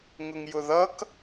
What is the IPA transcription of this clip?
ŋ ʊ ŋ j ʊ ð ʌ k

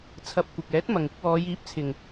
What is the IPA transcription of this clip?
t͡sʰ ɐ˧ p̚ kʷ ɪ˨ k̚ ɛː˨˥ t̚ m ɐ˨ ŋ ɪ˥ k̚ w ɔː˨˧ j iː˨˥ p̚ t͡sʰ ɪ˨ ŋ

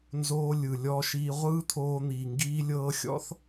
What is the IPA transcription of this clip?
n z oː˧ lʲ ɯ˩ lʲ ɔ˧ ʃ iː˧ ʁʷ ɯː˥ t̪ʰ oː˧ n̪ i˩ ŋ ɡ iː˧ lʲ ɤː˧ xʲ ɔ̰˥ θ

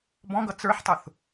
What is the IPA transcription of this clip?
b ɔ̃ ɡ ʌ t͡s ə˞ ħ tˤ ʊ θ

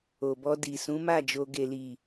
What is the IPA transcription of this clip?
o˨ b ɔ˧ d i˨ s ũ˨˦ m a˦˨ d͡ʒ o˨ ɡ e˨ l i˨

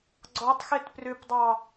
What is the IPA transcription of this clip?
ɡ͡ǀ ɔ tˤ x e t p r ʏ p dˤ ɑ

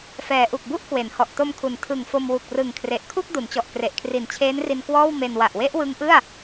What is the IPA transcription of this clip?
f ɛː˩˦ ʔ u˨˩ k̚ b u˥˩ ʔ k w e˩˦ n h ɔ˨˩ ʔ t o˧ m kʰ u˩˦ n tʰ ɯ˨˩ ŋ f o˧ m w u˨˩ k̚ r ɯ˨˩ ŋ kʰ r e˨˩ ʔ kʰ u˥˩ k̚ d u˩˦ n t͡ɕ ɔ˨˩ ʔ k r e˨˩ ʔ kʰ r i˨˩ n t͡ɕʰ eː˦˥ n r i˧ n k w ɔː˥˩ w m e˧ n w a˨˩ ʔ w e˦˥ ʔ w ɯ˦˥ ŋ ʔ ɯ˥˩ a̯

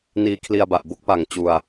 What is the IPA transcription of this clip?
n iː˧ kʰ l i˧ a̯ b a˨˩ ʔ b o˦˥ k̚ p a˨˩ ŋ t͡ɕ u˧ a̯

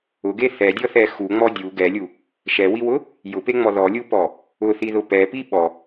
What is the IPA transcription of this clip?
ʊ ɡ e θ ɛ dʲ ɔ θ ɛ x u ŋ͡m ɔ dʲ u ɡ ɛ lʲ u | ʃ ɛ w i w ʊ | j ʊ p e ŋ͡m ɔ ð ɔ lʲ u p ɔ | ʊ θ i ð ʊ p ɛ p i ɓ ɔ

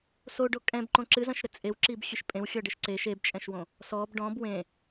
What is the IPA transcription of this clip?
s o ɖ o kʼ ɛ̃ b ǃ õ ǁ ɨ z ɐ̃ ʃ ɾ ɘ t͡sʼ e w ǁ i b xʲ ɨ ʃ pʼ ẽ w xʲ ɔ ɖ ɘ ʃ ǀ e ʃ e b t͡ʃʼ ɛ̃ ʃ w õ | s ɔ b ɖ ɔ̃ b w ẽ

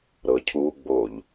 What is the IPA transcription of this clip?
ɾ ɤ cʰ u ɡ͡b o ʎ

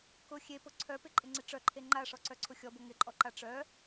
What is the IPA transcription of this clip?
k ʊ xʲ e p ʊ ǀʰ œ p ɪ ǃʼ ɪ ŋ͡ǀ ɪ ʈ͡ʂ œ ǃʰ e ŋ͡ǃ a ʂ ɔ ǀ œ ǀʰ ʊ xʲ ɔ b ʊ ŋ ɪ ǃʼ ɔ ǃ a ʈ͡ʂ œ

